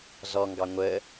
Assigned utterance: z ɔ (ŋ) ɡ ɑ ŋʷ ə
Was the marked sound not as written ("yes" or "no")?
no